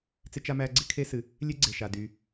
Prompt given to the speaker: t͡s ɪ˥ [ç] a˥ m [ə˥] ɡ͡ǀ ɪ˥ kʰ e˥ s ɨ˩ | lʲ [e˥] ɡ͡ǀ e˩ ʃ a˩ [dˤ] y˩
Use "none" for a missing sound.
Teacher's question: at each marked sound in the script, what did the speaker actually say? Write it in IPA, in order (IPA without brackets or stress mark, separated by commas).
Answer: t͡ʃ, æ˥, e˥, d